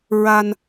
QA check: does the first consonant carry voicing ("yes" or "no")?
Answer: yes